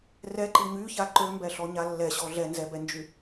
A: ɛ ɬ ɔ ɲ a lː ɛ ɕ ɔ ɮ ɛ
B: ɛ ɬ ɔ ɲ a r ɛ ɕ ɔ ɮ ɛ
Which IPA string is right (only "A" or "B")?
A